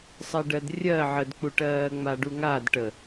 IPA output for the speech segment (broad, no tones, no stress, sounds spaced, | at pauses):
sˤ ɜ ɖ ɜ d rʲ ɜ ʕ ə d k͡p u ʈ ɜː ŋ͡m a ɖ u ŋ a d ʈ ə